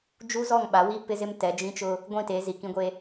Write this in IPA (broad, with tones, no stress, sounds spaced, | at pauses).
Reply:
d͡ʒ u˦ z ɔ˦˨ ŋ ɓ a˨˦ w i˦ p ɪ˦ z ɪ˦ m t ɛ˨˦ d͡ʒ ĩ˦ t͡ʃ ʊ˦ | ɡʷ ĩ˦˨ t e˨˦ z i˨ k ĩ˦ ɡʷ e˦